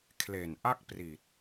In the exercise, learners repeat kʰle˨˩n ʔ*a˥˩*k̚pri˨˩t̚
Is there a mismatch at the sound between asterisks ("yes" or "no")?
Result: no